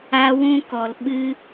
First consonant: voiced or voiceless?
voiced